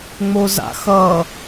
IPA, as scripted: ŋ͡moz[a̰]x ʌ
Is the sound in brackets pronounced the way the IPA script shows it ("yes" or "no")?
yes